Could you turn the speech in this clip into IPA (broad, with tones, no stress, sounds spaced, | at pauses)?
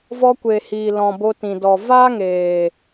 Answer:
v ɔ˧ kʷ e˨ h iː˨ l ɔ̃˨ b o˧ t ĩ˨ d ɔ˨ v aː˦ ŋ eː˨